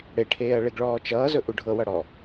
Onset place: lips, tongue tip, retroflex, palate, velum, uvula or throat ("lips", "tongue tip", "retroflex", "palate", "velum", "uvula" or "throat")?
retroflex